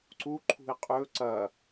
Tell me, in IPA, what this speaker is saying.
ǀ u ǃʰ ṳ i̯ qʼ ɵ ǀ ɐ

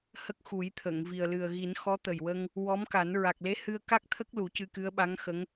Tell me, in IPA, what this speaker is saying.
h ə˦˥ k̚ x u˨˩˦ j t̪ʰ ə˨˩˨ ŋ v i˨˩ ə̯ l ɨ˨˩ ə̯ ɣ i˨˩˦ n x ɔ˧˥ t̪ ə˨˩ j w ə˧ ŋ | w ɔ˧˥ m k a˨˩˦ n ɹ a˨˩ k̚ l e˧˥ h ɨ˧ ə̯ k a˦˥ k̚ t̪ʰ ə˦˥ k̚ l u˨˩˦ c ɨ˧ k ɨ˧˥ ə̯ ɓ a˧˥ ŋ x ə˧˥ ŋ

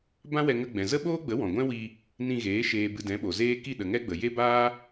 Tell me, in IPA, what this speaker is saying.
b ã˦ w ɛ˧ ŋ ə˧ ɡ͡b ɛ̃˨ z ə˦ ɓ oː˦ ɡ͡b ə˨˦ w ɔ̃˨ ɡʷ ɛ̃˦ w i˧ | n ĩ˧ ɣ eː˨˦ ʃ eː˨ b ɨ˨ d ɛ̃˨˦ ɓ o˨ z eː˦ k i˦˨ ɗ ə˨ ŋ ɛ˦ ɡ͡b ə˨ j e˦ b aː˦

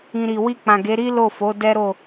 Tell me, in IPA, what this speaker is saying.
ĩ˨ ɾ i˨ w i˧ k͡p ã˨ ɡ e˨˦ ɾ i˦ l o˦˨ f o˨˦ d ɛ˦ ɾ o˦˨

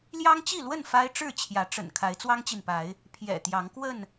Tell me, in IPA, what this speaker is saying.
l j ɑ˦ ŋ t͡ɕ i˥˨ l w ə˥˨ n f a˦ ɪ̯ ʈ͡ʂ ɻ̩˥˨ t͡ɕʰ j ä˨˦ ʈ͡ʂ ə̰˨˩ n kʰ a˨˦ ɪ̯ t͡s w ɑ˦ ŋ t͡ɕ i˨ n p a˨˦ ɪ̯ | pʰ j ɛ̰˨˩ t̪ j ɑ˨˦ ŋ k w ə˥˨ n

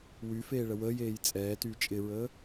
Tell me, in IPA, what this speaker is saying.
w y f eː ɭ ə w əː j eː j t͡sʼ ɛː t yː t͡ʃʼ ɪ ɹ əː

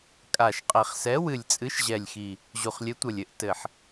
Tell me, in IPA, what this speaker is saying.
kʼ a˨˩ ʃ qʼ ɛ˨˩ χ s ɛ˨˥ w ɨ˨˩ lʲ t͡sʼ ɨ˨˥ ʃ ʑ ɛ˨˩ lʲ x i˨˩ | ʑ u˨˩ χ lʲ ɘ˨˥ tʷ ɐ˨˩ lʲ ɘ˨˥ ʔ t ɘ˨˩ ħ

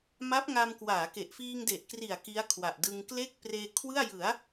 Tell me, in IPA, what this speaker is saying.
m a˦˥ p̚ ŋ a˧ m k w aː˩˦ k e˨˩ ʔ f iː˧ ŋ d e˨˩ ʔ k r i˨˩ a̯ k i˦˥ a̯ kʰ w a˨˩ ʔ d ɯ˧ ŋ k l e˥˩ k̚ p r eː˧ kʰ w ɯ˥˩ a̯ j ɯ˩˦ a̯

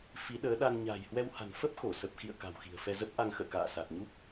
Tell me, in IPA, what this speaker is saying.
f i˨˦ ɗ əː˨˦ ɗ a˧ n ɲ a̤ː˨˩ j h w ɛ˧ w h a̤˨˩ n f ə˦˥ p̚ x o˧˩ s ə˨˩ p̚ x ḭ˧˨ ə̯ k a̤˨˩ w x i̤˨˩ ə̯ f ɛ˧ z ə˦˥ p̚ ʔ a˧ ŋ x ə̰ː˧˨ k a̰ː˧˨ s a˨˩ t̚ ɲ u˦˥ p̚

